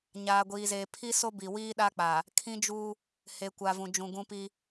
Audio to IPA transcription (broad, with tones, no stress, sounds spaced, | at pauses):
ɲ aː˨ ɡʷ iː˨ z eː˨ pʰ i˦ s o˦ b i˨ w iː˦ ɗ a˦ k͡p a˨ | kʰ ĩ˦ d͡ʒ u˦ | h e˨ kʷ a˨ v ũ˨ d͡ʒ ũ˨ ɡ ũ˦ p i˦